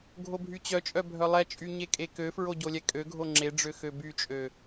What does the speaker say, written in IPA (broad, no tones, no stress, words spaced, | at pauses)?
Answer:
ɡʱobʱyt͡ɕœt͡ʃʼœ bʱœlˠɛt͡ʃʼy ɲekʼekøfɹo ɟolʲɛkʼøɡʱo ŋ͡ǁeɖ͡ʐø xøbyt͡ʃʼø